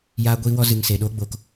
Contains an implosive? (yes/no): yes